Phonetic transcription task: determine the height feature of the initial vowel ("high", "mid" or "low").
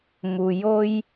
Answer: high